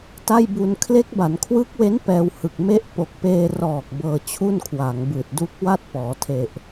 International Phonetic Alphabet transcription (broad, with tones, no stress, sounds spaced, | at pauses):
t a˥˩ j b u˧ n kʰ l e˦˥ k̚ b a˩˦ n kʰ w ɯː˦˥ k̚ w e˦˥ n p ɛː˧ w h ɯ˨˩ k̚ m e˦˥ ʔ p o˨˩ k̚ p eː˧ r ɔː˨˩ k̚ b ɤː˧ t͡ɕʰ u˥˩ n kʰ w a˩˦ ŋ b ɯː˨˩ t̚ d u˦˥ k̚ w a˥˩ t̚ p ɔː˩˦ tʰ e˨˩ ʔ